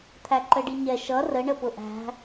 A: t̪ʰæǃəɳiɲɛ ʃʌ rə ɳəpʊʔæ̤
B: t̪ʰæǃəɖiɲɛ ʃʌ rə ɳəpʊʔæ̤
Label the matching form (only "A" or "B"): B